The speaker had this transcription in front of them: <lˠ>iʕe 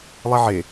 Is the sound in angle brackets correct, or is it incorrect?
correct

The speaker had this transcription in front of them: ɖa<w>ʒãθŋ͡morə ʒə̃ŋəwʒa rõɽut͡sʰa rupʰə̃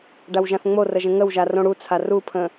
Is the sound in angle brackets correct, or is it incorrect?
correct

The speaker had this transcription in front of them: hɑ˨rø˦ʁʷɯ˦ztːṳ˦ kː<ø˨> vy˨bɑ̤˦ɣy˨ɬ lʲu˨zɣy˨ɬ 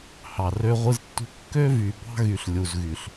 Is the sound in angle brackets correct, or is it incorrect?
incorrect: ø˦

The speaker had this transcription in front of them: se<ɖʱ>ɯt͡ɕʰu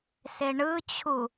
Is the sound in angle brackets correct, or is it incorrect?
incorrect: ɳ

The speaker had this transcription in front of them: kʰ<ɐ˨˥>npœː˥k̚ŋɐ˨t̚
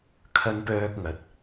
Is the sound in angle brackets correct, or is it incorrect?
incorrect: ɐ˥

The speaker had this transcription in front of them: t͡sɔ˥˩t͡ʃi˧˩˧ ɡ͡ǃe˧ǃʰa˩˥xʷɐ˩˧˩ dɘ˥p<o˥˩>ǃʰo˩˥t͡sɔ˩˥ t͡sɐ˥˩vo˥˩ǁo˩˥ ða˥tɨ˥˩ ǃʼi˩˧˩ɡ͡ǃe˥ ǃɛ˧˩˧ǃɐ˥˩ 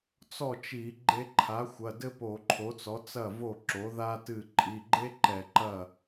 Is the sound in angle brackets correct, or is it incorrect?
incorrect: o˧˩˧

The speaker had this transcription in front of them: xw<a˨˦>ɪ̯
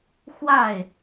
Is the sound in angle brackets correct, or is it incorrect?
incorrect: a˥˨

